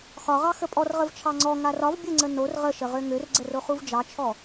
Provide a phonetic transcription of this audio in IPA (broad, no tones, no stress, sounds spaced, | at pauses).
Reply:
x ɒ ʁ ɑ x ə pʼ ɔ r ʁ ə v t͡ʃʰ ɑ ŋ͡ǀ ɔ ŋ a r ɒ v bʲ ə ŋ͡ǀ ə n o r ʁ ə ʃ ə ʁ ø ŋ ø r ɡ͡ǀ ə r o χ u v d͡ʒ ɑ t͡ʃʰ ɔ